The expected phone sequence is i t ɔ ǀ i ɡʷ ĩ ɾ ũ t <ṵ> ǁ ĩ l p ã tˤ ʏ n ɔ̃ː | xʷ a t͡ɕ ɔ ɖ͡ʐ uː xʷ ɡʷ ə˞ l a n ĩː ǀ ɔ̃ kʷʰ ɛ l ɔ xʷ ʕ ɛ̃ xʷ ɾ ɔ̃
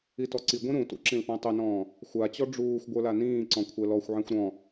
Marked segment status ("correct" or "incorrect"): correct